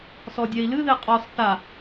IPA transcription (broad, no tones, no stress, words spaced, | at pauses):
sɔdʲɛi̯lɨðe qʼɔs θa